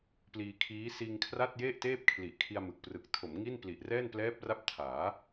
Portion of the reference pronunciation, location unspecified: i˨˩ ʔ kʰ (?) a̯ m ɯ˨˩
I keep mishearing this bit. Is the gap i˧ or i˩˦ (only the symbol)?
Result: i˧